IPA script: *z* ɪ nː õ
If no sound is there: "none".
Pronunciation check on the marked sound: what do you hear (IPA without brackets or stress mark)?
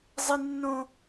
zˤ